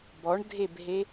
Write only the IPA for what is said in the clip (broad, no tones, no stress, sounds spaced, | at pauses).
b ɔ ɳ dʱ e b ɦ e